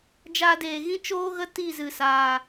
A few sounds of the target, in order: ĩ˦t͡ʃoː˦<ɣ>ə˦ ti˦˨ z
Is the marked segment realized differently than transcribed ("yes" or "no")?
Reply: no